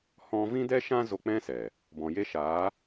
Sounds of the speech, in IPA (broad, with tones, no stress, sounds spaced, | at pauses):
h ɔ̃˧ v ĩ˦ d ɛ˦ ʃ ã˦ z o˧ k͡p ɛ̃˦ s ɛ˨ | b ɔ̃˨ j e˦ ʃ aː˨˦